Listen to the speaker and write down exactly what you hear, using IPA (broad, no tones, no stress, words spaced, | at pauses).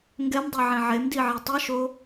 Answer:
ŋɡɛmdˤɛʕẽ ʕemdiʕɛ tˤɯʃo